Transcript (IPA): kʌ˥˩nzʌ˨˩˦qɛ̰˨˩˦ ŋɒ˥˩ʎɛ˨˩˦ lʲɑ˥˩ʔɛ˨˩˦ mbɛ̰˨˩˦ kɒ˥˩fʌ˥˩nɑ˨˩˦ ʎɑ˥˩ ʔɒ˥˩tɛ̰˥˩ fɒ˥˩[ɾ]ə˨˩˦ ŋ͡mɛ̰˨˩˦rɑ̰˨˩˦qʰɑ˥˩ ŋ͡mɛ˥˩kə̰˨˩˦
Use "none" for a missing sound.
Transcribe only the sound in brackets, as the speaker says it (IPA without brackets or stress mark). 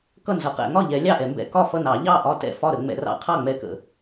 ɾ